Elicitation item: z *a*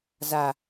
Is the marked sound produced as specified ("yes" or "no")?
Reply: yes